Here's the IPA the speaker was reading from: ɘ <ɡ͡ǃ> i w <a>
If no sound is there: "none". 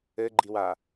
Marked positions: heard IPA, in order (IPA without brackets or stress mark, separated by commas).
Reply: ɡ͡ǃ, a